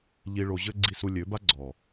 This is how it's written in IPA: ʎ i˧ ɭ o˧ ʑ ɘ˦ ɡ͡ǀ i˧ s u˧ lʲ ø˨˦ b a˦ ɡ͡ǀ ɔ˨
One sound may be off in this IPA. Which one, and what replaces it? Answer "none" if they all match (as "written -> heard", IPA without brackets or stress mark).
none